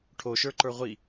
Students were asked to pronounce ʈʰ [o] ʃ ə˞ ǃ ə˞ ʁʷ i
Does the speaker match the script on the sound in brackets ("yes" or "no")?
yes